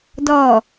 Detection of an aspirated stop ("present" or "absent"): absent